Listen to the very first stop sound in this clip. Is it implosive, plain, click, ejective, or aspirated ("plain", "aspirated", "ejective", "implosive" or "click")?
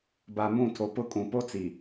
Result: plain